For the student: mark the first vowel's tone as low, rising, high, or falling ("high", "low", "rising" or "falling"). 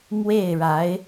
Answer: falling